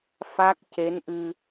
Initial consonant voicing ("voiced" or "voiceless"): voiceless